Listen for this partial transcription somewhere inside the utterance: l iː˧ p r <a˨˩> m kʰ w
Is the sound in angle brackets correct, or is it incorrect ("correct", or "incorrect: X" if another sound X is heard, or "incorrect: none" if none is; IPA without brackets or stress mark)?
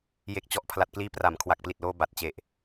incorrect: a˩˦